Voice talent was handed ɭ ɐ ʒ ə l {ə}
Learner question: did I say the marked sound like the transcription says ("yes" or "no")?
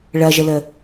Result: yes